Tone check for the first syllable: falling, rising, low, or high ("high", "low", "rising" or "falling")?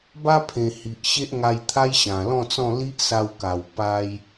high